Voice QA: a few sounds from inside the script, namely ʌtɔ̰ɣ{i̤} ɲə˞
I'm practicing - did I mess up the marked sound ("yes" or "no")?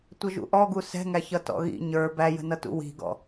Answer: yes